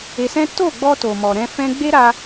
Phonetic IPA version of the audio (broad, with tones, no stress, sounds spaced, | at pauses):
e˧ s ɛ̃˦ t o˦˨ ɡ͡b ɔ˧ t o˨ m ɔ˨ ɾ ɛ̃˧ f ɛ̃˧ ɡ͡b e˦ ɾ a˧